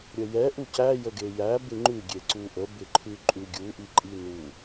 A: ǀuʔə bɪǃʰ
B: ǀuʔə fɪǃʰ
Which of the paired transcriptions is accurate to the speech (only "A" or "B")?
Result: A